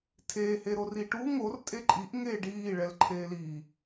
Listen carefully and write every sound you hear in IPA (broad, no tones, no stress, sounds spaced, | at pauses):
tʰ eː h e ɾ o r i ʈ u ŋ o r tʼ e ǃʼ i ʔ ŋ eː ɖ iː ɭ ɛ l ǃʰ eː l iː